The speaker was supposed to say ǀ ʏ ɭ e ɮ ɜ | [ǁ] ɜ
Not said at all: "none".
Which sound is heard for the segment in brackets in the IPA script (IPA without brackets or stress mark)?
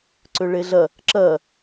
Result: ǁ